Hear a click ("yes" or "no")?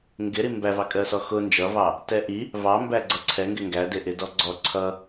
yes